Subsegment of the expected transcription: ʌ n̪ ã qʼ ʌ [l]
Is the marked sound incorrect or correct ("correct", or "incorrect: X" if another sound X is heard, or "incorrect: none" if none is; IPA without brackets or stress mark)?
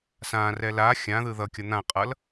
correct